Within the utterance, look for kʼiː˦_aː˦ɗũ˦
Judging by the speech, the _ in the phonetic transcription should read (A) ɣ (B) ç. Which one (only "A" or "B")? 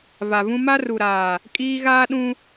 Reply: A